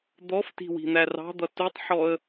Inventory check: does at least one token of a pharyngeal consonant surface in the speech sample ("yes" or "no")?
yes